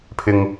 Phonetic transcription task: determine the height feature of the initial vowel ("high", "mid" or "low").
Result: high